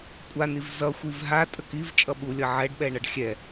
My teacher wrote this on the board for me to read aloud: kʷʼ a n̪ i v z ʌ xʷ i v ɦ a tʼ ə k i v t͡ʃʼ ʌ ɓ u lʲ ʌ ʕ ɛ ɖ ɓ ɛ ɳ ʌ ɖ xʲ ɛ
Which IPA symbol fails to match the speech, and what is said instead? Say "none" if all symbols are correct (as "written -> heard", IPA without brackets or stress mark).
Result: none